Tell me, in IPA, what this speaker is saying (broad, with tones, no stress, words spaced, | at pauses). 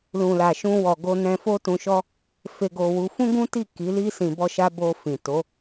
lũ˨la˨ʃũ˧ wɔ˨ɡo˧ nɛ̃˧fo˦tũ˧ʃɔ˦ | fe˧ɡo˧wu˧ fũ˦ɡũ˦ti˦˨ ki˨˦li˦ sĩ˧bɔ˦ʃa˦ bo˧fĩ˨to˨˦